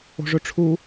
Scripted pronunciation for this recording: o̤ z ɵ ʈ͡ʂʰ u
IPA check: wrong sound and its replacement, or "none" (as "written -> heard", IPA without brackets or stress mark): z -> ʐ